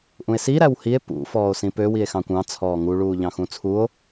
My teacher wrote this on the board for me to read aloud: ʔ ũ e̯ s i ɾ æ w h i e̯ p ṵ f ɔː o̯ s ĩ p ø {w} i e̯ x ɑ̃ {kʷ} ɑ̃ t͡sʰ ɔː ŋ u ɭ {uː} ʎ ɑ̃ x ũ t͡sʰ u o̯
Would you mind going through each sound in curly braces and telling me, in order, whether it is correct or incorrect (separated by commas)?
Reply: correct, correct, correct